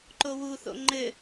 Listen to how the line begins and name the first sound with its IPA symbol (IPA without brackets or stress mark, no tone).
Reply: ǃ